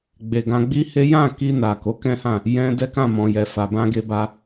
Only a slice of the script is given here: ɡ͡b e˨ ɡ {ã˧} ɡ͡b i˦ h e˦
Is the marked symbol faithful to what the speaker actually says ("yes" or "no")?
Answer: yes